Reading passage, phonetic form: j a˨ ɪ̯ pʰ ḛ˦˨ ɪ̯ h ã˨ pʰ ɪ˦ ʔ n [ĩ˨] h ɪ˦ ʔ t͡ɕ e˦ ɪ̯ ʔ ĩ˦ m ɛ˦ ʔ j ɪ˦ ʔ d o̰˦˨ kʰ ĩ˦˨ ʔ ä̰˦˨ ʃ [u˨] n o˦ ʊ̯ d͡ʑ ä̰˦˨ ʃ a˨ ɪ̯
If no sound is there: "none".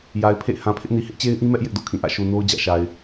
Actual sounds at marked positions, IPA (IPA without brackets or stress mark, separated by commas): i˨, u˨